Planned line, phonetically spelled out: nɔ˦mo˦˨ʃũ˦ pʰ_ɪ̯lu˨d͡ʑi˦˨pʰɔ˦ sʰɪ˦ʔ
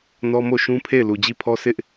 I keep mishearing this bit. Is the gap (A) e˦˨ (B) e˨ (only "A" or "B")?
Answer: A